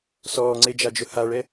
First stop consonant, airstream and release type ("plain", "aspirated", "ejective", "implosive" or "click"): click